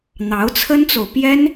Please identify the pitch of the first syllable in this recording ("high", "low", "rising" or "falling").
rising